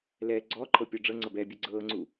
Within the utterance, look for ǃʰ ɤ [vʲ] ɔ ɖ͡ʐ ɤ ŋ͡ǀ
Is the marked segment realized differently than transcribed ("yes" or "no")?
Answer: yes